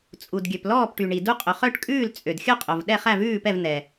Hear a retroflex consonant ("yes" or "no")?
yes